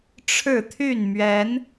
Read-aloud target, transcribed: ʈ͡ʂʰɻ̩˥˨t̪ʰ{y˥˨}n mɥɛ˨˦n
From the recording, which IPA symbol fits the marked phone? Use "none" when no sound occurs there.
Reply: y˥˨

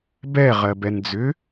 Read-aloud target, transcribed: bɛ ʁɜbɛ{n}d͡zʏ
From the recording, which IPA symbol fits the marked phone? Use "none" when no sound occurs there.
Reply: n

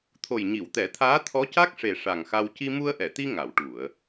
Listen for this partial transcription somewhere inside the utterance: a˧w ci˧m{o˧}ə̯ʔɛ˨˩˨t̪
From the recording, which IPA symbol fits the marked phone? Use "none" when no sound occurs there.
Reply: u˧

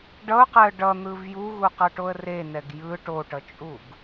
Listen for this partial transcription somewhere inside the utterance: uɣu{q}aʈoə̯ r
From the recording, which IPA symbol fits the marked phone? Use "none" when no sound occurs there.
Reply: q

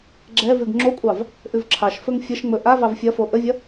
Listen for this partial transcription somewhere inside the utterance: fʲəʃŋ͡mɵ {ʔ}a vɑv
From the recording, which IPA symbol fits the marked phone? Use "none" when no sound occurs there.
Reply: ʔ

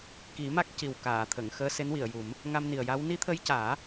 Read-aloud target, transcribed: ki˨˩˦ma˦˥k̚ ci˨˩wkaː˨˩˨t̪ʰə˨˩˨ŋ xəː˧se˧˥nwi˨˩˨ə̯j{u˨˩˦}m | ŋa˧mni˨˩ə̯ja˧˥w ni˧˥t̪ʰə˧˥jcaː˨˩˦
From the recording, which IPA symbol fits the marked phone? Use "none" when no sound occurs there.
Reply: u˨˩˦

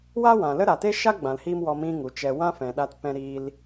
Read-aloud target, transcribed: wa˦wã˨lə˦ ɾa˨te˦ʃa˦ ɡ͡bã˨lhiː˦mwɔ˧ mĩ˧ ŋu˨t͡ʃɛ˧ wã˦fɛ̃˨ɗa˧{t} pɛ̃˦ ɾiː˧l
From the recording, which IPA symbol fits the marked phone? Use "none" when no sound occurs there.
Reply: t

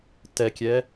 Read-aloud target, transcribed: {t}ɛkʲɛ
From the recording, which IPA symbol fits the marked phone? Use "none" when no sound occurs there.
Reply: t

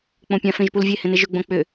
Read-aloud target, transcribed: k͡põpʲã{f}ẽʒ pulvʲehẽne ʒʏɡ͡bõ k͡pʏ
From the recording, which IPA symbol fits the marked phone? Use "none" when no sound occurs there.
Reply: f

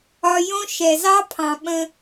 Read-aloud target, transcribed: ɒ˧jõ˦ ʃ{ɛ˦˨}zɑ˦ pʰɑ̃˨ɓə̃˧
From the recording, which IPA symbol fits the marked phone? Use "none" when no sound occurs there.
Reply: ɛ˨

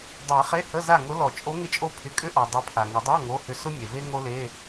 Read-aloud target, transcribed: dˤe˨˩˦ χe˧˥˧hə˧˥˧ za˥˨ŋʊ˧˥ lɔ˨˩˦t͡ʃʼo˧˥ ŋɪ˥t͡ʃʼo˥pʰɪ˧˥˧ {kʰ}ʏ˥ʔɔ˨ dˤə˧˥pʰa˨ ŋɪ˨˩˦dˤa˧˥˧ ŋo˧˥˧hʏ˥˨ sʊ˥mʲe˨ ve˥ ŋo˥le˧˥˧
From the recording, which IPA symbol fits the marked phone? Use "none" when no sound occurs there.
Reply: kʼ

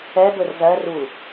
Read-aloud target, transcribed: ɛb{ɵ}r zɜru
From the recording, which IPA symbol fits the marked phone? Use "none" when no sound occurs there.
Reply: ɵ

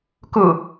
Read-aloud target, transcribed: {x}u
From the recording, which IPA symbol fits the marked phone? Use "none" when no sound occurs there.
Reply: k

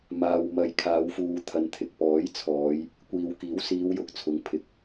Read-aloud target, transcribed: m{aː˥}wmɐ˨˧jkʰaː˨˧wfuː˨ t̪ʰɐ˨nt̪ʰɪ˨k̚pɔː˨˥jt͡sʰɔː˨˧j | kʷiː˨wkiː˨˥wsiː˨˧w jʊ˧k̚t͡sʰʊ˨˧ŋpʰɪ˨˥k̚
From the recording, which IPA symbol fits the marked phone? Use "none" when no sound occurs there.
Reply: aː˨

